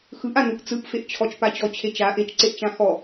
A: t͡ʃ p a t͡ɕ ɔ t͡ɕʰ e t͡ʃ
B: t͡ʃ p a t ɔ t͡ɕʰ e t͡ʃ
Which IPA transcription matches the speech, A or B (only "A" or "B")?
A